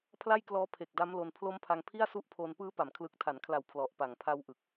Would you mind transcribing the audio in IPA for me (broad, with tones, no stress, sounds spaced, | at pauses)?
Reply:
pʰ l a˥˩ j k l ɔː˦˥ pʰ e˨˩ k̚ d a˦˥ m l o˧ n pʰ l o˦˥ m pʰ a˧ ŋ pʰ i˥˩ a̯ s u˦˥ ʔ pʰ o˧ n p ɯː˦˥ p a˩˦ m kʰ l ɯ˨˩ k̚ tʰ a˩˦ n kʰ l a˨˩ w pʰ l ɔ˨˩ ʔ p a˨˩ ŋ pʰ a˦˥ w ʔ ɯ˨˩ k̚